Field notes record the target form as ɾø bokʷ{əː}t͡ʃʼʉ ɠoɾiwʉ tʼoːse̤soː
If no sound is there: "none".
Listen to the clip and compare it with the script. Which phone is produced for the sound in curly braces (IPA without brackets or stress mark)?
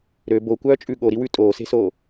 œː